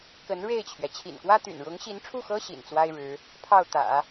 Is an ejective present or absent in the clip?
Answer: absent